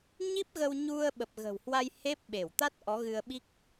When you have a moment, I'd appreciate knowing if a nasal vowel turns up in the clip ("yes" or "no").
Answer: no